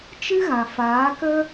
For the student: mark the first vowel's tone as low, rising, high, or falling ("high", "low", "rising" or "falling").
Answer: high